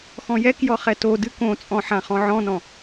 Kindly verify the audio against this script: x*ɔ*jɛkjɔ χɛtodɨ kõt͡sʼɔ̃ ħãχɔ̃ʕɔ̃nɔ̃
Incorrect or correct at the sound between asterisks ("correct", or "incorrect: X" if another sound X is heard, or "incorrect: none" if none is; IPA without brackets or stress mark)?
incorrect: ɔ̃